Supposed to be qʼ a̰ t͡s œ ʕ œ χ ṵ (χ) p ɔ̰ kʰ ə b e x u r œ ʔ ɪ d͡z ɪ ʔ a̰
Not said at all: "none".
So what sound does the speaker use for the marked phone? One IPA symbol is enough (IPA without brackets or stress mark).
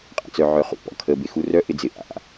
none